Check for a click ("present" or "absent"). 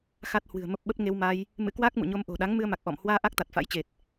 absent